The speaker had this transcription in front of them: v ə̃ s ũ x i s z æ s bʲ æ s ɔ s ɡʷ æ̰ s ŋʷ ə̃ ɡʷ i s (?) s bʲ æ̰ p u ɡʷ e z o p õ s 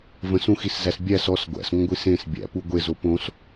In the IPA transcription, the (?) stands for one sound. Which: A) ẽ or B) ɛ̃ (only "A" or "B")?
A